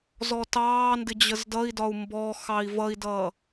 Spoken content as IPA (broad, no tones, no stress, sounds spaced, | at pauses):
z ɔ t ɑː n d ɪ d͡ʑ ə z d ʌ i̯ d ɒ u̯ m b ɔ x ɑ i̯ v ʌ i̯ d ʌ